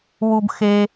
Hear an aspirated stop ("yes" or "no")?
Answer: no